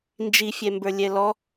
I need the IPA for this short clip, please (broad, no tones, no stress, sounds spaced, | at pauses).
n d͡ʒ i fʲ ɛ m b ə˞ lʲ ɛ l ɔ